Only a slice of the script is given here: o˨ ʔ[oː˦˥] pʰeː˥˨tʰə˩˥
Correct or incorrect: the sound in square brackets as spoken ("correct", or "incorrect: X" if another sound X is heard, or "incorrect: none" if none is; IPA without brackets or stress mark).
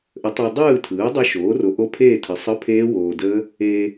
incorrect: o˦˥